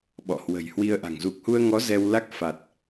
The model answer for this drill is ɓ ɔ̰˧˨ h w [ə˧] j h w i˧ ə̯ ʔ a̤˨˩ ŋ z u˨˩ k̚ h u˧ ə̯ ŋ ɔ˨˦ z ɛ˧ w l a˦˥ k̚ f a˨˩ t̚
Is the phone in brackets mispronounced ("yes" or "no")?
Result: yes